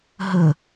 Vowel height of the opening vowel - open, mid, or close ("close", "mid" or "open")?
mid